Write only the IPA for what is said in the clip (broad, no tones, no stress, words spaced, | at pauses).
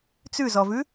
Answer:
t͡sʉzɔvʉ